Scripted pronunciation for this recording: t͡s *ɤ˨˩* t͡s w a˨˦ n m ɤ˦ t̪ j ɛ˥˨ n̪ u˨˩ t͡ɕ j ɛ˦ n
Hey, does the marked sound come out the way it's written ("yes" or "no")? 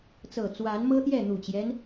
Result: yes